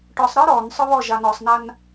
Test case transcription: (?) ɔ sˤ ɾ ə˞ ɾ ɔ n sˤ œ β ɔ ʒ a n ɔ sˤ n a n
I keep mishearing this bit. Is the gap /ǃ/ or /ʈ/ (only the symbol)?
ʈ